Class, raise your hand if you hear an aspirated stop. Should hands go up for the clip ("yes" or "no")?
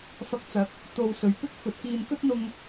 no